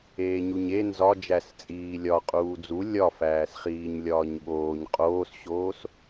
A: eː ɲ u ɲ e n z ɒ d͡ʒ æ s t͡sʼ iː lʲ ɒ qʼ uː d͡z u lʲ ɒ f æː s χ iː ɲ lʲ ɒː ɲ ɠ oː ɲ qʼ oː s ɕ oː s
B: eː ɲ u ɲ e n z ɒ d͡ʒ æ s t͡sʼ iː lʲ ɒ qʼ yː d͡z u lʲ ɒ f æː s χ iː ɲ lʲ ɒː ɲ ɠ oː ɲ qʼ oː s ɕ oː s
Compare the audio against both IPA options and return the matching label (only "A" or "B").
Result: A